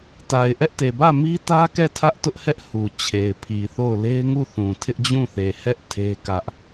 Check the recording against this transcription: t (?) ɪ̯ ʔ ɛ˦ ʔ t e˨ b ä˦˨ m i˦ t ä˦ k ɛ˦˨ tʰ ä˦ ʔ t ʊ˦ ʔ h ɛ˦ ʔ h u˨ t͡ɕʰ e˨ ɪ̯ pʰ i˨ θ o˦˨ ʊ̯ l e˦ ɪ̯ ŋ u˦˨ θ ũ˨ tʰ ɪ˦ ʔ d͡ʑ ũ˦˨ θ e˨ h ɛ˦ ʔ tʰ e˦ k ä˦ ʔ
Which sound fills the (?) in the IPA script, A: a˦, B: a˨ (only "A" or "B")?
B